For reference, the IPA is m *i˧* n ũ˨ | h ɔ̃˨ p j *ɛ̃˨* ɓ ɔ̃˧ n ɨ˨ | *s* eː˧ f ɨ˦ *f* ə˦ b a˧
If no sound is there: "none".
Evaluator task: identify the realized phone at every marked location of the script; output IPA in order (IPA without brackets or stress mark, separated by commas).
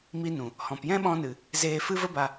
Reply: i˧, ɛ̃˦, z, v